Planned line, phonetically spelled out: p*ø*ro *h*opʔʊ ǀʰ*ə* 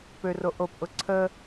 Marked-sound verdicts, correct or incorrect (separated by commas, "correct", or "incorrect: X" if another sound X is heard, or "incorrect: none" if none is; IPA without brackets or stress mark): correct, incorrect: ʔ, correct